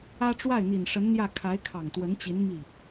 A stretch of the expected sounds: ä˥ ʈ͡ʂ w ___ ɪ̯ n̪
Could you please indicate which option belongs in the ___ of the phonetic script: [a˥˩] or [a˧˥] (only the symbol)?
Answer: a˥˩